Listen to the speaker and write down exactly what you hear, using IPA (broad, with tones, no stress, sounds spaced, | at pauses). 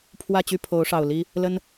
pʰ w ä˥˨ t͡ɕ y˥˨ pʰ o˨˦ ʊ̯ ʂ ɑ˨˩ ʊ̯ l i˦ | l ə˦ n